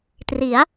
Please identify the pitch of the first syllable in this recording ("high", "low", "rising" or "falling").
rising